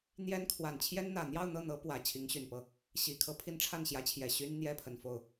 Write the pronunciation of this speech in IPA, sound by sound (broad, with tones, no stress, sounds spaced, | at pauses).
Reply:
n̪ j ɛ˥ n kʰ w a˨˩ n t͡ɕʰ j ɛ˥ n n̪ ä˨˩ n̪ j ɑ˥˧ ʊ̯ n̪ ɤ˥˩ n̪ ɤ˧˥ p w ä˨˩ t͡ɕʰ i˧˥ ŋ ɕ y˨˩ n p ɤ˥˩ | ɕ i˨˩ kʰ ɤ˥˩ pʰ i˥ n ʈ͡ʂʰ a˥˩ n ɕ j ä˧˥ t͡ɕʰ j ɛ˨˩ ɕ y˥ n n̪ j ɛ˥ pʰ ə˨˩ n f o˥˩ ʊ̯